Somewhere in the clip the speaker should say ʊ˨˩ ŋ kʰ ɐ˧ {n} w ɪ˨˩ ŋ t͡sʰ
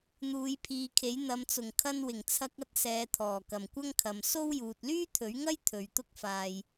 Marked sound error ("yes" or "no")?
no